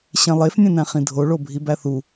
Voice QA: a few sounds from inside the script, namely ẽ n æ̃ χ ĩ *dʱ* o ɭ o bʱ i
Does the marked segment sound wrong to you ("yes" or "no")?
no